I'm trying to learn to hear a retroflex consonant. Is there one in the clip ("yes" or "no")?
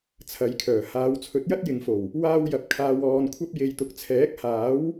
no